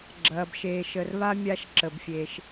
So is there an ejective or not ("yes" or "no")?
no